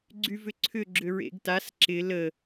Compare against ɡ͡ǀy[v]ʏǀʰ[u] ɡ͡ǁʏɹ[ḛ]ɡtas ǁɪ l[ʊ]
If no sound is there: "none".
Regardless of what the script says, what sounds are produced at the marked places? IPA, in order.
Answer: v, ʏ, ḛ, ə

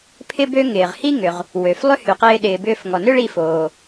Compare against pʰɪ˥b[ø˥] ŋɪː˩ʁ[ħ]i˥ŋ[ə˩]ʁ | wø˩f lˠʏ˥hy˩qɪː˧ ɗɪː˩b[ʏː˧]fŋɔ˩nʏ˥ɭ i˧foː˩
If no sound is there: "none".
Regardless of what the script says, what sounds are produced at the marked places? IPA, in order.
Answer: ø˥, h, ʏ˩, ʏː˧

